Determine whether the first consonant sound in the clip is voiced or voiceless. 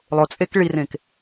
voiced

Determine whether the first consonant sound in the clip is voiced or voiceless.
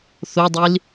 voiceless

